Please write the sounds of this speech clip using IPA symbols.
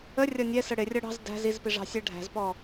ə rʲ ɒ nʲ ɛ s ə ɽ ɪ rʲ ɒ ɽ ɑ̤ z d æ̤ z i z p i ʐ ɑ̤ sʲ ɛ ɖʱ æ̤ z p ɔ

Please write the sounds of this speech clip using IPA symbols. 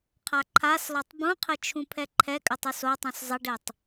qʰ a ǃʰ a s l ɔ tˤ b ũ qʰ ɘ t͡ʃʰ ũ pʰ ɛ ǃʰ ɛ kʼ ɘ tˤ u s o tˤ ũ s zˤ ɐ ɖ e tˤ

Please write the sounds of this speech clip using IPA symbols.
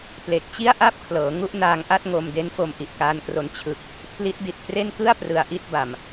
p l e˨˩ k̚ t͡ɕ i˥˩ a̯ ʔ a˥˩ p̚ kʰ l ɤː˩˦ ŋ u˥˩ ʔ n aː˧ ŋ ʔ a˥˩ t̚ ŋ o˧ m d e˦˥ n f o˧ m ʔ i˨˩ ʔ k aː˧ n k r o˧ n t͡ɕʰ ɯ˨˩ k̚ | pʰ l i˦˥ t̚ d i˨˩ t̚ k r e˥˩ n k ɯ˥˩ a̯ p r ɯ˧ a̯ ʔ i˥˩ t̚ b a˨˩ m

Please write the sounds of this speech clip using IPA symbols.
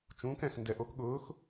t͡ʃ ũː˩˥ k ɛ̃˩ x n d ɛ˩ ʔ o˩˥ k ɠ ʊː˩˥ x

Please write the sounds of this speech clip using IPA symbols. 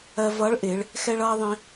ɜ˧ v ʌː˧˥ ɭ ʔ ɪː˩˧ ɭ | x ɛ˥ ɭ ʌː˥ ðˤ ĩ˧

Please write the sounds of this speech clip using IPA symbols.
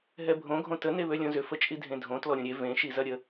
ɦ ɛ bʱ õ ɡʱ õ t ə n e β ø lʲ õ z ʏ f ə t͡ʃʼ i dʱ ẽ dʱ õ t l ɔ ɾʲ õ ɾʲ e v ẽ ʃ i z ɐ ɾʲ ə

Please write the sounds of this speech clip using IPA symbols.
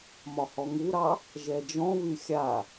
m ɒ h ɔ ŋ u ɾ ɑ | ʒ ɛ d͡ʒ ɔ̃ β y xʲ a

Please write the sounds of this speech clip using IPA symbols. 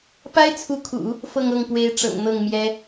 p a˥ ɪ̯ t͡sʰ u˧˥ kʰ ṵ˨˩˦ | f ɤ˥˧ ŋ ɤ˥˩ ŋ p w e˧˥ ɪ̯ ʈ͡ʂ ɤ̰˨˩ ŋ n̪ ɤ˥˩ ŋ m j ɛ˥

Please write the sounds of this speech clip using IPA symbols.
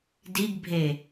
d i ɡ bʱ e

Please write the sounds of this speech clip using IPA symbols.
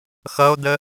x ʌ o̯ d̪ ə

